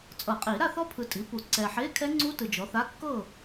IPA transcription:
t͡sʼ ɤ˨˩˦ qʼ i˨˩˦ ɾ a˥˨ θ ɔ˦˥ pʰ ɯ˨ tʼ i˩˥ p u˨˩˦ ǀ ɛ˨ ħ e˧˥˧ kʰ ɛ˦˥ ŋ͡ǀ u˦˥ t ɯ˨ d͡ʒ ɔ˩˥ θ a˧˥˧ kː ɤ˥˨

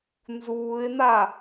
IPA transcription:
n z uː ɪ̯ n a

